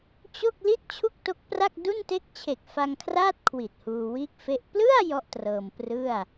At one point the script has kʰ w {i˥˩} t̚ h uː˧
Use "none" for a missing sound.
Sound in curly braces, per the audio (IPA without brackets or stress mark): i˨˩